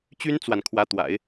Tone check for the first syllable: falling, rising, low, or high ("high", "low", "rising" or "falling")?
high